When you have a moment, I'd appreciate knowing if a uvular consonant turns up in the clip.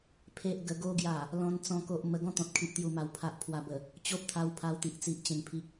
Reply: no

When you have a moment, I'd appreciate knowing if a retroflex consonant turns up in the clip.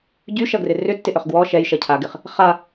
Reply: no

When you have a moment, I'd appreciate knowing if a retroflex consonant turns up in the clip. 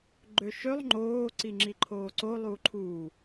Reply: no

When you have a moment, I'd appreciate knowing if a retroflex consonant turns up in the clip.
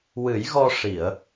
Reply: yes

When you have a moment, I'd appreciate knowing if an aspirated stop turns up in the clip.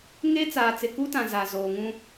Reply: no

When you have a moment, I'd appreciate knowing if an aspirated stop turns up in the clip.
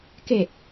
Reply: no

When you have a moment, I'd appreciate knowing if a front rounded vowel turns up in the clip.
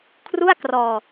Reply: no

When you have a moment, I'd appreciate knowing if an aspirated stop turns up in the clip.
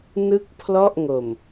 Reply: yes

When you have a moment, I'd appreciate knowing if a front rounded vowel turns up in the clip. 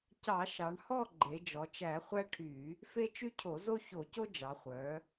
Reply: yes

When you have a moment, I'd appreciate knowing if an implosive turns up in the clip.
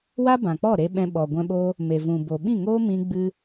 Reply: yes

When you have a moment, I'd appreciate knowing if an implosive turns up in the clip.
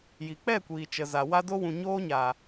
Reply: no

